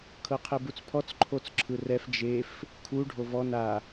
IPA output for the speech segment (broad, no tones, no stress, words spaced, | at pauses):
kʰɤqʰebut͡spʰɔt͡s ǃʰot͡sǁʰɯrɛf d͡ʒef | kʰu ɖʱovɔ na